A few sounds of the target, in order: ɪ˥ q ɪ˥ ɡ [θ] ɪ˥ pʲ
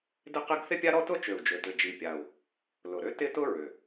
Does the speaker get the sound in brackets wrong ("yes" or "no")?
no